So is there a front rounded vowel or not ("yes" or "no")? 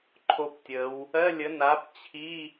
no